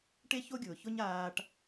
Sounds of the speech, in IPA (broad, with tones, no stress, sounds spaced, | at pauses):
ʈ e˥ ç o˥ ɡʲ ʊː˩ ç ʊ˥ ɲ aː˧ ʈ